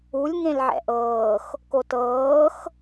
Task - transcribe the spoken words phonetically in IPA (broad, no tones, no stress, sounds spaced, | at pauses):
u lʲ ŋ ẽ l ʕ ɛ̰ ʔ ɤː x | k o t ɤː x